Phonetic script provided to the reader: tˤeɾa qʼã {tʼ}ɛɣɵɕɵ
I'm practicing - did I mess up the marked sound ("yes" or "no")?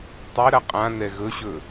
yes